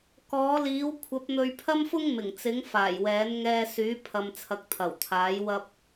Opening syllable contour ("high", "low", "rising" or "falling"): rising